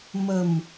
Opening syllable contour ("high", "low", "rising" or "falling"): low